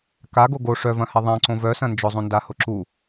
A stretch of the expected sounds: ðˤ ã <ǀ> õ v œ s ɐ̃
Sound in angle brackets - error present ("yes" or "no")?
no